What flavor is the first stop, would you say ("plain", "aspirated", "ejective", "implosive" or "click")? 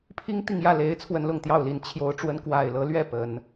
aspirated